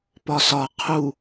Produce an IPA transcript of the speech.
p ɒ s ɒ qʰ u

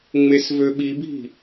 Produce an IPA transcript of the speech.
ŋ͡m e s v ø ɓ i bʱ i̤

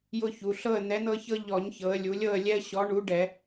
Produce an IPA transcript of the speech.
j ʊ˦ ç u˩˧ ɬ ɤ˥˨ ə̯ n̪ ɛ˨˥ n̪ ɤ˦ ç ɤ˦ ʎ ɔ˧˩˧ ɲ ç ɤ˩˧ ə̯ lʲ u˩˧ lʲ ɤ˥˨ ə̯ lʲ ɛ˦ ə̯ ɕ ɔ˨˥ ɳ u˨˥ ɖ ɛ˧˩˧

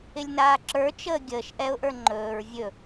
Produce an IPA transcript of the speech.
ɪ lʲ n aː ǁ ə˞ t͡ʃ əː ɡʲ əː ʃ ʔ ɛ ʊ̯ ʔ ə˞ ŋ͡ǃ ɵː ɹ vʲ ɵ

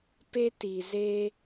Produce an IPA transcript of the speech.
p e˦ t i˨ z e˦

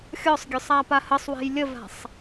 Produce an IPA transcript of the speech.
xʲ ɔ sˤ ɡʲ ø sˤ a p a h ə sˤ w ɛ̤ j lʲ ə v a̤ sˤ

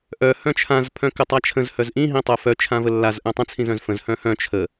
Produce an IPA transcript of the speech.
ʔ œ h œ̃ t͡ʃʰ ã z pʰ œ̃ k ə tˤ a t͡ʃʰ ə̃ z h œ z ʔ ĩ ɦ ĩ tˤ œ f œ t͡ʃʰ ã v ə lː a z ʔ œ̃ tˤ ə̃ t͡sʰ ĩ z œ̃ z f ə̃ z h œ̃ h œ̃ t͡ʃʰ ə

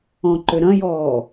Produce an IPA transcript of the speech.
ɔ̃ ǃ ʏ ɾ ɐ̃ j ɔː

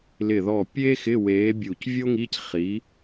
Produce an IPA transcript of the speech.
l ɪ˧˩ ð ɔ˧˩ pʲ e˥ x ɪ˧˥˧ w eː˨˥ bʲ uː˧˩ c vʲ o˥ ŋ i˧˥˧ c χ i˨˥

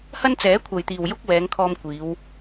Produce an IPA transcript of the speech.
h ɐ˥ n t͡s ɛː˨˥ kʷʰ ɐ˨ j t̪ iː˨ w j ʊ˥ k̚ w ɛː˨˧ ŋ kʰ ɔː˧ m kʷ iː˨˧ w

